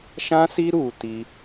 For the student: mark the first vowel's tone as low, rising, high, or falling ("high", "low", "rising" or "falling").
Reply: high